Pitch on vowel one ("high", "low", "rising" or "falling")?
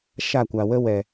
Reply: falling